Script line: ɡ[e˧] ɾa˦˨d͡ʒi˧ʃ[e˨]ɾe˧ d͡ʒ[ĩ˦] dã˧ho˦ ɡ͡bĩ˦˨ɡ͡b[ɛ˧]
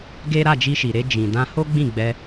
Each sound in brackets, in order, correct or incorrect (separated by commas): incorrect, incorrect, incorrect, correct